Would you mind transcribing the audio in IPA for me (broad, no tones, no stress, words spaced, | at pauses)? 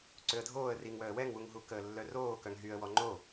ǀøə̯dʱoːə̯ riŋwœə̯ wɛŋwuŋɦu kəːlːœroː kœŋɦyə̯wɔ ŋ͡ǃo